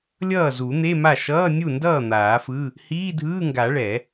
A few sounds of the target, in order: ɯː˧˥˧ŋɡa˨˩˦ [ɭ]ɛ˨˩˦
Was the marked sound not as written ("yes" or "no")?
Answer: no